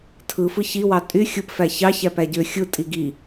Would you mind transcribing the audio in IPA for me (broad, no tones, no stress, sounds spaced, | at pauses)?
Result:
tʰ ɯ f ɯ ç i w ɑ tʼ y xʲ ɯ p f æ ç ɑ ç æ p æ ɟ ø xʲ ɯ tʼ i ɡ i